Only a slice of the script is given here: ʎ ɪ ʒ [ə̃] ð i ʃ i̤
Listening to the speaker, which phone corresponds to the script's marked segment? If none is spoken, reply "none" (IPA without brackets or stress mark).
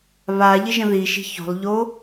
ə̃